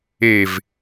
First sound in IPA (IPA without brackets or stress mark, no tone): e